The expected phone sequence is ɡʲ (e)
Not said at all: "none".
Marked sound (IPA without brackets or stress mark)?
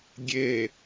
e